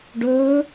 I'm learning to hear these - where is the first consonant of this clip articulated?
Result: retroflex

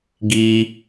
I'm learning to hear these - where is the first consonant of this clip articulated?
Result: velum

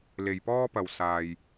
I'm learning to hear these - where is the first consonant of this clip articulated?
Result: tongue tip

